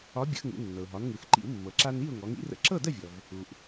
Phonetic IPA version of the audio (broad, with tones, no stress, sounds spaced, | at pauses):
ɒ˨˥ bʲ ə̰˧˩˧ x ŋ ṵ˩˧ nː ɤ˩ ʊ̯ ɦ ɒ˩˧ n ŋ ɯ˩ x ǃ ḭ˧˩˧ w mː ɤ˩ ǁ a˧ n i˥˨ ʊ̯ ŋ ɔ˩˧ ŋ ḭ˨˥ r ə̰˧ ǁ ɤ˥˨ d ə˥˨ vʲ ɔ˩ v | u˩ ʔ